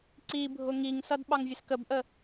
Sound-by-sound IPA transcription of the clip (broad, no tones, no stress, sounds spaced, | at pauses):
ǀ i bʱ ʊ ŋ i ŋ s ʌ d ɓ ɑ ŋ vʲ ə s k ə b ʔ ə